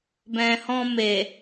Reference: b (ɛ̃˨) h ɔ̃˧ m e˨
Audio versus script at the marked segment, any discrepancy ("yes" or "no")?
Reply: no